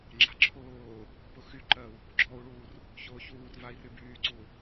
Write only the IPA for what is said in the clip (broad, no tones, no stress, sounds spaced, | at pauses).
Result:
ŋ͡ǁ a̤ ǁʰ ʊː | p ʊ x y ǃ ɜ u̯ | ɡ͡ǁ ɔ u̯ ɭ uː r | ç ʊː ç uː r v a i̯ r y b yː ǀ u